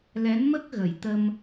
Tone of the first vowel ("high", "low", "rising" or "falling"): rising